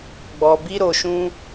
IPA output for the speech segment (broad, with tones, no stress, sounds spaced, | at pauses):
ɡ͡b ɔ˨ b i˧ ɾ o˨ ʃ ũ˧